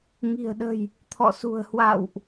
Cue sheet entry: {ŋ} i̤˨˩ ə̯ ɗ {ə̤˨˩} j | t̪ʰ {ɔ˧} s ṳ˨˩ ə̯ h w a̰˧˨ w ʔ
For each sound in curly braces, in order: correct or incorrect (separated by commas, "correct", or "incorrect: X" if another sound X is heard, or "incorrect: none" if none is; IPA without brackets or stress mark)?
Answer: correct, correct, incorrect: ɔ̰˧˨